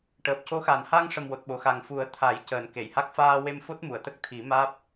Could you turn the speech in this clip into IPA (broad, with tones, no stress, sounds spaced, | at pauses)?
ʈ əː˨˩ p̚ c o˧˥ x a˨˩ n h a˧ ŋ ʂ ə˨˩ m w o˨˩ t̚ ɓ o˨˩˨ x a˨˩ ŋ f u˨˩˦ ə̯ t̪ʰ a˨˩˦ j c əː˨˩ n k e˨˩˨ j h a˦˥ k̚ f aː˧ w e˧ m f o˦˥ t̚ m u˨˩˨ ə̯ t̪ ə˦˥ k̚ t̪ʰ i˨˩˦ m aː˦˥ p̚